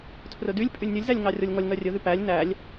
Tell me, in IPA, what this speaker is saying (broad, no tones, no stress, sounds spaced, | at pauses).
tʰ r ɵ d y lʲ pʼ y lʲ nʲ ɵ lʲ z æ lʲ ŋ ɑ rʲ ɔ lʲ ŋ ɔ lʲ ŋ œ rʲ ɵ ð y p æ lʲ n æ lʲ